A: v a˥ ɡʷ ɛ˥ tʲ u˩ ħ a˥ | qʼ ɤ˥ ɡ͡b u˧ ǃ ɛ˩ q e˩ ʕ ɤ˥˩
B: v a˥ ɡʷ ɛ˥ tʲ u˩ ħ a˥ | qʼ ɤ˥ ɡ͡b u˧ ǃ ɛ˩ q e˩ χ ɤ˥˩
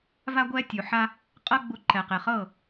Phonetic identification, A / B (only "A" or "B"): B